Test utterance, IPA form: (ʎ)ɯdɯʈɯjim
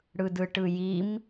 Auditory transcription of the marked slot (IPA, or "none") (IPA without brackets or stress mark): ɽ